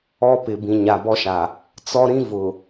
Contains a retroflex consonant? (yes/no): no